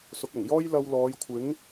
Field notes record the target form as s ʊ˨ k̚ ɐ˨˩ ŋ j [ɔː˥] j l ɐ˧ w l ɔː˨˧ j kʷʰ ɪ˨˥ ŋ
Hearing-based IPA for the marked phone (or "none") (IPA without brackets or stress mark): ɔː˥